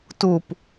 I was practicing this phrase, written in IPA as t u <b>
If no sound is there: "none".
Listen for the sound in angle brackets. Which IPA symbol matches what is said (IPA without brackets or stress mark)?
p